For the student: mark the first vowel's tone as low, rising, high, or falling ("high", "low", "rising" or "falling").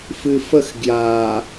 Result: low